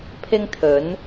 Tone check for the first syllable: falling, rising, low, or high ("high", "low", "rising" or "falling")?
high